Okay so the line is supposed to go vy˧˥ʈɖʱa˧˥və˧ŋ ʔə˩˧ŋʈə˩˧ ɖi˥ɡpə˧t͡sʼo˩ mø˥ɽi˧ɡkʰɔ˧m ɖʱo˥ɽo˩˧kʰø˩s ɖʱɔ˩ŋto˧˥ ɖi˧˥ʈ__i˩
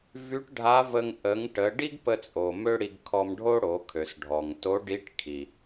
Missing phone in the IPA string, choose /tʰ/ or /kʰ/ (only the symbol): kʰ